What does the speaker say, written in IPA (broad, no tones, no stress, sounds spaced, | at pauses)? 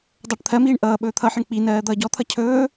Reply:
dˤ ʌː ʈ t̪ʰ ɜ m iː ɳ ʔ ʌː ɓ ɵː t̪ʰ ʌ ħ ə ɳ k͡p i n ɜː d̪ ʌː ɟ ɔ t̪ʰ ʌ cʰ ɵː